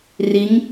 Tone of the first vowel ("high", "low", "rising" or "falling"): rising